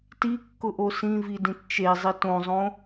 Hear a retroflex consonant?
no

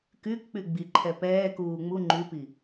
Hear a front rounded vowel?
yes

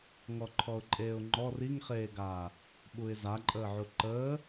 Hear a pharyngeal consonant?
yes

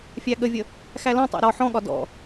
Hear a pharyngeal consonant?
yes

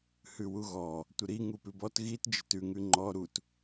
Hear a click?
yes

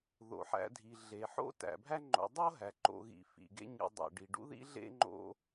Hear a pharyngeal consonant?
yes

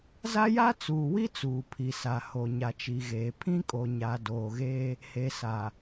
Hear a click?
no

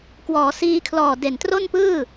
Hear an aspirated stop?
yes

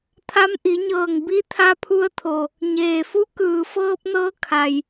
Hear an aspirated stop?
yes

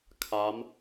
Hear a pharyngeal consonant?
no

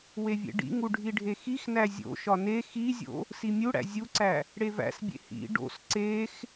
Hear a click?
yes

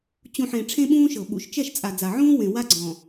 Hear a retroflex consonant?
yes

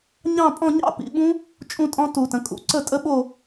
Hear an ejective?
yes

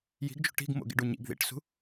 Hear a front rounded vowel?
no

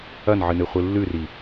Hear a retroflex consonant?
no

